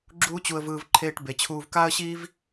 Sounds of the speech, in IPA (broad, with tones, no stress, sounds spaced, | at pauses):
ɡ͡ǁ uː˦ t͡ɕ u˧ ə̯ v ɯː˧ v ǃʰ eː˦ ʈ b e˧ t͡ɕʰ uː˧ v k aː˦ ə̯ ɕ iː˦ v